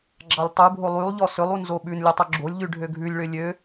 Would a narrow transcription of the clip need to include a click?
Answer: yes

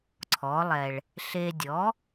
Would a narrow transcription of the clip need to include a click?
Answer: yes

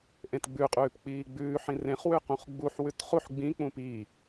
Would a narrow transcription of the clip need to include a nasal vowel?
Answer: yes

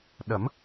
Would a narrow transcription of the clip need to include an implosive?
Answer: yes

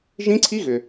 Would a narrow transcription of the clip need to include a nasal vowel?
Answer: yes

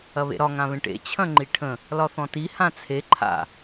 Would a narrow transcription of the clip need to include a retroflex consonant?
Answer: yes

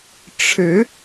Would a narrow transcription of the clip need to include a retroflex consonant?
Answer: yes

